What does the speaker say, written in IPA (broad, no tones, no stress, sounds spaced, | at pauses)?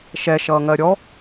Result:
ʃ ɛ ʃ ʌː ŋ ɜ ɾʲ ɔ